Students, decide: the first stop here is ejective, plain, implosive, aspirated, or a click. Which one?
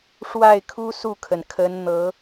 aspirated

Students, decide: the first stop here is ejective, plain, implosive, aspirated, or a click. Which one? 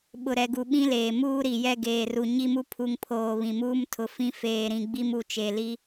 implosive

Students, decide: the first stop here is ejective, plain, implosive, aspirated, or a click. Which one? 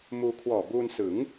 aspirated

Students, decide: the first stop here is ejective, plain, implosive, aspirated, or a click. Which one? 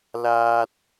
plain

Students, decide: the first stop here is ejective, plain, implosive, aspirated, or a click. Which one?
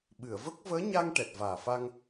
implosive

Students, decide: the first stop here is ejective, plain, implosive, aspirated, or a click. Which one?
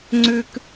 click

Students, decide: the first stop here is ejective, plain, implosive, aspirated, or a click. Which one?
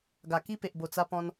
plain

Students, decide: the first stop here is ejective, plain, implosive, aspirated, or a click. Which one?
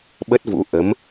implosive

